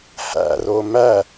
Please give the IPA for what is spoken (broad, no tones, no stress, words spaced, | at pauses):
hæ̰ro mæ